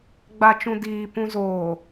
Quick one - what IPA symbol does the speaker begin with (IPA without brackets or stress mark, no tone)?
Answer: ɡ͡b